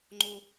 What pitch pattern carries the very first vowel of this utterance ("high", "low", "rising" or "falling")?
low